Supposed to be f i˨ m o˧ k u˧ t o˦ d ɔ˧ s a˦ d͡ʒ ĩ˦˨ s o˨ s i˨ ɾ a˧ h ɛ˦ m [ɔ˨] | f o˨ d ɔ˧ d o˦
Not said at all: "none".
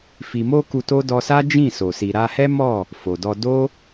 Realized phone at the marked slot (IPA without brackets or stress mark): ɔ˦˨